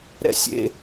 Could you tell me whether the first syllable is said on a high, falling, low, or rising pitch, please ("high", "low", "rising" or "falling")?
high